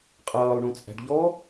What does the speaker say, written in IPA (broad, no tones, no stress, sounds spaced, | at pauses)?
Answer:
qʼ ʌː lˠ ɳ ũ t͡sʼ æ̤ ɖ ʎ ɔ